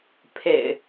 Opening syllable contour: low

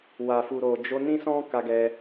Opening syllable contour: low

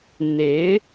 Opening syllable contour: rising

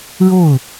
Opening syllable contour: falling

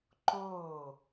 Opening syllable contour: falling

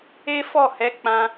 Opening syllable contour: high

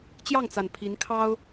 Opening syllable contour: falling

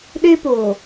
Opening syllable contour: high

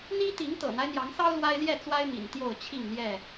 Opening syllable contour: high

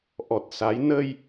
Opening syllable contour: low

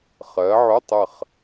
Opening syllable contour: rising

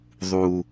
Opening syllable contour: low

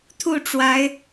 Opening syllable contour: falling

